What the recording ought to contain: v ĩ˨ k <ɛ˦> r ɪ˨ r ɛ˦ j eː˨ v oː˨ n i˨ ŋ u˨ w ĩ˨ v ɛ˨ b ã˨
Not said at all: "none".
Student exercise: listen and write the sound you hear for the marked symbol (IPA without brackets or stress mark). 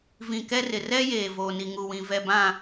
ɛ˦